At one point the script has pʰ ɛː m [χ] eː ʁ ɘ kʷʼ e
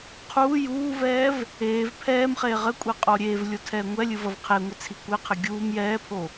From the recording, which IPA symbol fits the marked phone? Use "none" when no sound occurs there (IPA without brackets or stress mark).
χ